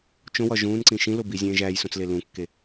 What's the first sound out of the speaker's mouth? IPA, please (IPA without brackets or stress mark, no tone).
t͡ʃ